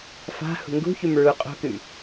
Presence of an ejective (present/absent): present